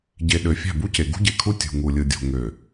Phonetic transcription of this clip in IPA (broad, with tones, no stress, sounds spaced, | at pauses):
ɟ e˨ ɗ ø˨ fʲ æ̤˦˨ b u˦ c e˨ ɡ ṳ˦ ɟ e˨ kʰ u˦ tʲ ṳ˨ ŋ u˨ lʲ ɯ˨ dʲ o̤˨ ŋ ø˨